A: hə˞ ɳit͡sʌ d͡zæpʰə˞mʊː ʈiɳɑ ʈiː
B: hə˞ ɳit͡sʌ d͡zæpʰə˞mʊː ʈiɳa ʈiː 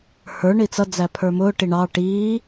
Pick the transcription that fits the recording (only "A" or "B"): A